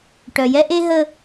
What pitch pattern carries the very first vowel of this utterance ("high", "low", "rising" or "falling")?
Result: low